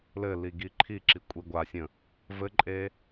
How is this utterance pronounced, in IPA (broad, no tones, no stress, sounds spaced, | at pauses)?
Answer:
l ɘ l i ɡ i ǃʰ i ǁ i kʷʼ i ɡʷ a sʲ ə̃ | v ɘ ǃʼ e